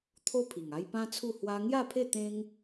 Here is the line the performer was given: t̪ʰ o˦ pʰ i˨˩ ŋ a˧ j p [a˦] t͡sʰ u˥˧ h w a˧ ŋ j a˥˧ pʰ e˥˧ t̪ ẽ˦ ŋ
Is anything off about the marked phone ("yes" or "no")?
yes